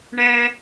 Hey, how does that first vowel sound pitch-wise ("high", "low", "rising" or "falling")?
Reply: high